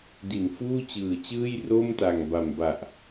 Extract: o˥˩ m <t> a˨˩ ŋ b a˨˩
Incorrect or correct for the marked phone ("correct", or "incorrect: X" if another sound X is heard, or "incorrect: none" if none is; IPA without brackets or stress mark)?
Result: correct